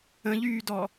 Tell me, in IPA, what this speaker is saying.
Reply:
ə̃ ʎ yː d ɔ

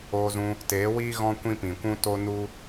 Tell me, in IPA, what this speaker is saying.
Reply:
oː˧ z ũ˧ | t eː˨˦ w iː˦ ɣ ɔ̃˦ kʷ ĩ˦ p ĩ˨ kʷ ũ˦ t o˦ n u˦

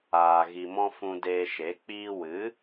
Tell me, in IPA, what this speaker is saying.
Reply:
aː˨ ɣ i˨ m ɔ̃˧ f ũ˧ d eː˧ ʃ e˨˦ k͡p iː˧ w ɨ˨˦

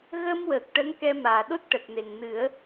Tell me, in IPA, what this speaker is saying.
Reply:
ɣ ə˧ m w əː˨˩ k̚ ʈ ə˧˥ ŋ k ɛ˧ m aː˨˩ ɗ o˦˥ t̚ ʈ ə˨˩ k̚ n e˨˩ ŋ n ɨ˨˩˦ ə̯

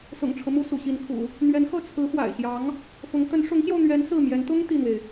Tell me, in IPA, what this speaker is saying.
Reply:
s ʊ̰˨˩ ŋ ʈ͡ʂʰ ɤ˦ m u˧˥ s ṵ˨˩ ɕ i˧˥ n kʰ ṵ˨˩˦ | n̪ ɥ ɛ˧˥ n x ɤ˥˩ t͡sʰ ɹ̩˧˥ x w a̰˨˩ ɪ̯ ɕ j ɑ˧˥ ŋ | f ʊ˧˥ ŋ t̪ ə˧˥ n ʂ ʊ˧˥ ŋ ɕ j o˧ ʊ̯ n̪ ɥ ɛ˧˥ n s ɹ̩˥˩ m j ɛ˧˥ n t̪ ʊ˥ ŋ t̪ i˥˩ n̪ w e˩ ɪ̯

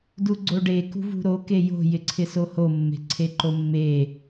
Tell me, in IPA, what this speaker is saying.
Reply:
d u ɡ͡ǀ o ɖ e k ṳ v ṳ ɾ o k e j o̤ j ɪ ǀʰ ɪ s o h o mː e̤ ǀʰ e ǃ o mː e

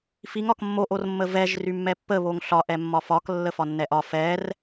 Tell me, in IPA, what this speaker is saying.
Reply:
f i ŋ ɒ k mː o ʔ o r mː ə v ɛ ʒ r y mː ɛ pː ə β o ŋ ɬ ɒ ʔ ɛ mː ɒ f ɒ k lː ə f ɒ nː ɛ ʔ ɒ f ɛ r

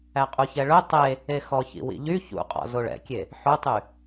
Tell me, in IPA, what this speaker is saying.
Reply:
æ qʼ u ç ɛ ɭ ɵ tˤ e | e x ɔ ç ḭ w ḭ ʎ y ç ṵ qʼ ɔ̰ z o ɭ ɛ̰ kʲ e | ħ ɵ tˤ y

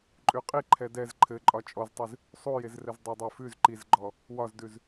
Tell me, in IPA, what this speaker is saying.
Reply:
ǃʼ ʉ qʼ i ǃʰ ɛ d ɛ z ǃʰ ɘ ǃʼ ɒ t͡ʃʼ ɔ z tˤ ʉ z | sˤ u j e z r ɘ z dˤ e dˤ ə˞ f ʉ z ǃ i z ɡ͡ǃ ɔ | w ɒ z d ʉ z

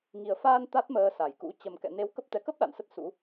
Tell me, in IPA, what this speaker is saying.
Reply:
ŋ i˨˩ ə̯ f aː˧ n t̪ a˦˥ t̚ m əː˧ s a˧˩ j k ṵ˧˥ t͡ɕ ə˨˩ m k ɛ̰˧˨ n e˨˦ w k ə˦˥ p̚ t̪ ɛ˨˦ k ə˦˥ p̚ ɗ a̰˧˨ n s ə˦˥ t̚ s ṵ˧˥

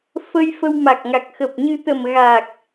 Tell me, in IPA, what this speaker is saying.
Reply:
f ə˧ j f ə˧ w m a˨˩ k̚ ŋ a˨˩ k̚ x ə˨˩ p̚ ɲ ɨ˧ t̪ ə˨˩ m ɣ a˨˩ k̚

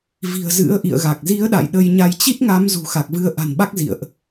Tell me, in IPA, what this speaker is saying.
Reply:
v i̤˨˩ ə̯ z ɨ̰˧˥ ə̯ ʔ ḭ˧˨ ə̯ ɣ a˨˩ k̚ z i˨˦ ə̯ ɗ a̰˧˨ j ɗ ə˧ j ɲ a˧ j t͡ɕ i˦˥ t̚ ŋ a˨˦ m z ṳ˨˩ x a˨˩ k̚ v ɨ˨˦ ə̯ ʔ a̤˨˩ n ɓ a˦˥ k̚ z ḭ˧˨ ə̯ ʔ

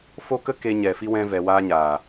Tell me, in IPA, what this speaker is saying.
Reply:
f o˦ k ə˦ k e˧ ɲ ɛ˨ f i˧ w ɛ̃˧ v ɛ˧ w aː˦ ɲ aː˨

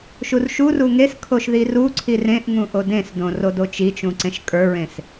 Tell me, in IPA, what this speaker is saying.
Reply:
ʃ u r ʃ u r u ŋ e s kʰ o ʃ ð i r u ǀʰ i r ẽ ʔ ŋ ũ ʔ o d ẽ s d õ r o d o t͡ʃ i t͡ʃ ũ ǀ ẽ ʃ kʼ ə˞ ɹ ẽ s

